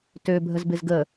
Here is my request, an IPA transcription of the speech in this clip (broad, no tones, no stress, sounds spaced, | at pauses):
t ø bʱ ə z b ɪ z ɡ ə